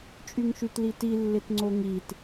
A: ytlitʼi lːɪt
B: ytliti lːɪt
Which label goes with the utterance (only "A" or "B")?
B